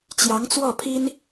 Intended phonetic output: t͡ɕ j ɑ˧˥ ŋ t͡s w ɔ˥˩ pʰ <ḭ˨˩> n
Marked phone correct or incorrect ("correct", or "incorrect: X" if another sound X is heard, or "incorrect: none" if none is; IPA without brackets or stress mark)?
incorrect: i˥